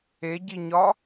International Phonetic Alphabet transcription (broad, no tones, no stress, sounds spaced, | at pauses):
e ɟ i ɲ ɒ